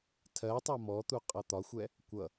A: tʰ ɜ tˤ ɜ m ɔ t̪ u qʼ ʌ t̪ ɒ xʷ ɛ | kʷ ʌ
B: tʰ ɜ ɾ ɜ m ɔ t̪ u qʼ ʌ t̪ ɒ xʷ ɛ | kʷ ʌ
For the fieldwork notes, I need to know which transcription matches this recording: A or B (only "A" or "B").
A